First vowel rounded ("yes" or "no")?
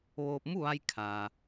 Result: yes